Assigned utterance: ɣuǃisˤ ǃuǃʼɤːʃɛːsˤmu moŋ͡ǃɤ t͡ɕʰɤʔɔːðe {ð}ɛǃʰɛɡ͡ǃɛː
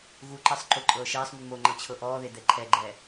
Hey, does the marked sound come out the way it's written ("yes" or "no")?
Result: no